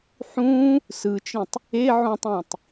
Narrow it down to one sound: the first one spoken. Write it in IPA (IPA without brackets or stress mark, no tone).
ħ